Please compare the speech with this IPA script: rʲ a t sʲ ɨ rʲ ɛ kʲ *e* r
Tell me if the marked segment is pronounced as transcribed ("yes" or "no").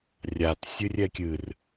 no